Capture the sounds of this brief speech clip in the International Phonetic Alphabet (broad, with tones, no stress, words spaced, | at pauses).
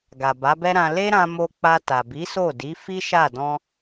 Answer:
ɡa˨ba˨˦bɛ˦ɾã˧ le˦ ɾã˧mo˧ k͡pa˧ta˨bi˨˦so˦˨ di˨˦fi˦ʃa˦˨ dɔ̃˧